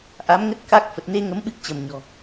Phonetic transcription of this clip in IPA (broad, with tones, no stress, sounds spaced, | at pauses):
ʔ a˨˦ m ŋ ə˦˥ t̚ k a˦˥ k̚ f ə˨˩ t̚ n e˧ ŋ ə˨˦ m ɓ ɨ˦˥ k̚ t͡ɕ ə˧˩ m ɲ ɔ̤˨˩